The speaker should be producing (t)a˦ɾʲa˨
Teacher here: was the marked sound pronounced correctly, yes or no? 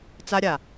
no